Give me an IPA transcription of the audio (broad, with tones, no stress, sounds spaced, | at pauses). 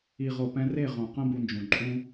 i˨ ʁ o˨ p ɛ̃˧ r e˦˨ ʁ õ˨ q ə̃˦ b u˧ n d͡ʒ ũ˨ ǃʼ ũ˦